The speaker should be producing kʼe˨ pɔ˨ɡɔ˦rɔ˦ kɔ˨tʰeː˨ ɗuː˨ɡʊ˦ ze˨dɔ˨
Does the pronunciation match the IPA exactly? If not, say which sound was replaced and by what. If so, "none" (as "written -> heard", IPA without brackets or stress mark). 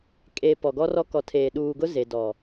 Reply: none